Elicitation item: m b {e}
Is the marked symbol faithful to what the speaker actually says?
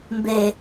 yes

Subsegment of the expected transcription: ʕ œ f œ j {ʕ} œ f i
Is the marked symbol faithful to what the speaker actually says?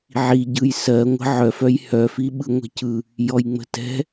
no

